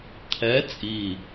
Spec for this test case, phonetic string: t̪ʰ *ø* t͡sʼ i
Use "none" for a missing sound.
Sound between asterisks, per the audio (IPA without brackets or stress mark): ɛ